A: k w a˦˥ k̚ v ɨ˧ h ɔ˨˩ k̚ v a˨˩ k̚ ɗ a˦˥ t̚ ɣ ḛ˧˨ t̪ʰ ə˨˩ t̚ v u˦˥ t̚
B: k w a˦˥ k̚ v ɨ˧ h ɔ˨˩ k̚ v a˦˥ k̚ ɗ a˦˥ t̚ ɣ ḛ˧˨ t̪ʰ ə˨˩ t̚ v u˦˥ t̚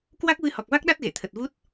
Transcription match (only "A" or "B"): B